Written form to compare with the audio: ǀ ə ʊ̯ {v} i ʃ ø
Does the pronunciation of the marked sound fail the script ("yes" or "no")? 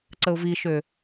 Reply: no